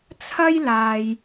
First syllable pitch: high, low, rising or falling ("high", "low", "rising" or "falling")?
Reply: high